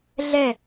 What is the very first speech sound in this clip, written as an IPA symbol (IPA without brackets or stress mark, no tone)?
ɮ